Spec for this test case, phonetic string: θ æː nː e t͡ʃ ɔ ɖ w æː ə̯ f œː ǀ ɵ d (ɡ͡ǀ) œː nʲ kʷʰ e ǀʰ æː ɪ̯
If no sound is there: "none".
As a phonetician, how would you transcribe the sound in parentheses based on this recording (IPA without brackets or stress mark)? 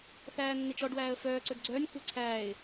ɡ͡ǀ